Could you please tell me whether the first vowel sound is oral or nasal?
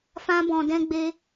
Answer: nasal